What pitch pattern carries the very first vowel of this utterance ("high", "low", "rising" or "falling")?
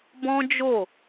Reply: high